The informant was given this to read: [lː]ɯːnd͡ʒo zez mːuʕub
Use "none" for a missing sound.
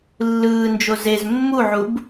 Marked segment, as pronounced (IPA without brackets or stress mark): lː